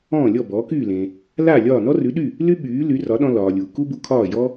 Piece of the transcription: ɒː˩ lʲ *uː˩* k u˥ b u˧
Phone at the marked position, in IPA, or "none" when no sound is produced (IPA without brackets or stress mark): uː˩